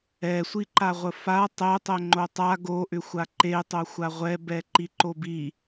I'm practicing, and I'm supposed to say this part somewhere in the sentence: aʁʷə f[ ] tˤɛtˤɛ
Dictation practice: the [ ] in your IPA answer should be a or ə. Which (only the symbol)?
a